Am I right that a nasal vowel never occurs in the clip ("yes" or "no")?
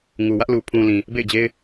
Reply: no